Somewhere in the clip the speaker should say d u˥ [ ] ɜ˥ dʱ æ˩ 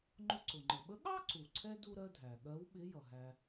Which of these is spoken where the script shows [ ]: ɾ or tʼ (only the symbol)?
ɾ